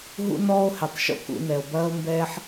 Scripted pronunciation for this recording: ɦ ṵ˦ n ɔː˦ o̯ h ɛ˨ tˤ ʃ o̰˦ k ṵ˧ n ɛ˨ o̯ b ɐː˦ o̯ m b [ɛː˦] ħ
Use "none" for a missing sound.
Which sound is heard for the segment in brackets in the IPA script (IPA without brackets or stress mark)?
ɛː˦